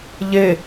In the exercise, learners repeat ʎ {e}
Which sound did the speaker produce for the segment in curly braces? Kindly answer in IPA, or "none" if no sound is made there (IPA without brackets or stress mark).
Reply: e